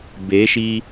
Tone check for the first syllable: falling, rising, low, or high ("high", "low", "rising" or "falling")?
rising